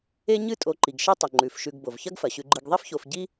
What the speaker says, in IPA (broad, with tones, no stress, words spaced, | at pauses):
e˦ɲɨ˦ tʼo˨ǃi˩ɡʃi˥tˤɵ˩ ŋ͡ǃʉ˩fʃʉ˨ɡ bo˩vçɐ˥ɡfɐ˩ɕʉ˨ ɡ͡ǃɨ˨ɡðˤi˥fço˨f ɟi˦